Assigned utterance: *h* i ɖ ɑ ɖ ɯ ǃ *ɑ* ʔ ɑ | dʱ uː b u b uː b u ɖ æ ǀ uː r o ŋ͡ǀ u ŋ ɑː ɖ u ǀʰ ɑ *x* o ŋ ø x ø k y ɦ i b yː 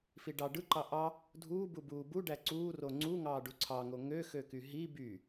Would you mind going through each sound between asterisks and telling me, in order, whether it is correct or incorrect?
incorrect: f, correct, incorrect: ŋ

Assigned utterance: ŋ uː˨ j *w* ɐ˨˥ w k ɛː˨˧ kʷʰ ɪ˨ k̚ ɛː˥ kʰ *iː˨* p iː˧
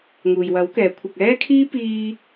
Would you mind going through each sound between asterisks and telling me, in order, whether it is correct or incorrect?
correct, incorrect: iː˥

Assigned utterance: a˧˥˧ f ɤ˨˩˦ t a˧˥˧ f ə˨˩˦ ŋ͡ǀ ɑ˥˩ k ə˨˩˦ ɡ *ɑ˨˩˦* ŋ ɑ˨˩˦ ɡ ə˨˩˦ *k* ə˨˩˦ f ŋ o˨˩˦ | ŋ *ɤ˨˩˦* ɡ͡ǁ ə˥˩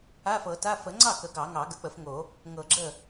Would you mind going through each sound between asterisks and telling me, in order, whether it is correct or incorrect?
correct, incorrect: k͡p, correct

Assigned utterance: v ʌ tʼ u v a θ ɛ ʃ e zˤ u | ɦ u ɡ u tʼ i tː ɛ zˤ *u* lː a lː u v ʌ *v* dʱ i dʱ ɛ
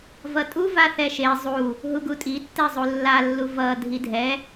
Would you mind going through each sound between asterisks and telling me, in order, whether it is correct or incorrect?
correct, incorrect: none

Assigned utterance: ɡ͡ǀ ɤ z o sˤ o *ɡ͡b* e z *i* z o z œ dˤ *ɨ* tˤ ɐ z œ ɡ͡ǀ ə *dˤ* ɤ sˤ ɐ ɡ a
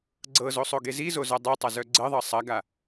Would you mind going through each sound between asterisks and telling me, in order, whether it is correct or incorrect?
incorrect: ɡ, correct, incorrect: i, incorrect: ðˤ

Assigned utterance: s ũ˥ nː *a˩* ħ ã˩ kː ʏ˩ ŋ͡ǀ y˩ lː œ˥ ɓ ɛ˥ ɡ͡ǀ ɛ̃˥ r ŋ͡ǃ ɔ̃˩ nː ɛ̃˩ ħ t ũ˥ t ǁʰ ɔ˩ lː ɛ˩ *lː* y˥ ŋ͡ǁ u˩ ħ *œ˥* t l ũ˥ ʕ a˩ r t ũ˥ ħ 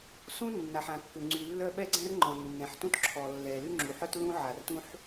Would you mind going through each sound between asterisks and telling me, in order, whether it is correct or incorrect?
correct, incorrect: l, correct

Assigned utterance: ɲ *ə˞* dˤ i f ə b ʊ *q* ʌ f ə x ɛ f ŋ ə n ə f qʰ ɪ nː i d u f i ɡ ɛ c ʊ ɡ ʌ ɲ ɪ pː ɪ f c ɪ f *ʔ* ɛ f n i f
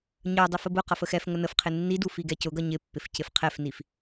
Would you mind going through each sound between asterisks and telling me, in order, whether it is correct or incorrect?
correct, correct, incorrect: qʰ

